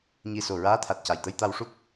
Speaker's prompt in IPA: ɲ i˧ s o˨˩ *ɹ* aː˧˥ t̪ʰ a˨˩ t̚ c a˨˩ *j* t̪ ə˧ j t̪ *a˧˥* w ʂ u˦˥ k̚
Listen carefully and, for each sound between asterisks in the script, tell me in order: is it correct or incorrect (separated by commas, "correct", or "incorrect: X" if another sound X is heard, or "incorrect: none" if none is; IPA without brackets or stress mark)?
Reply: correct, correct, incorrect: a˧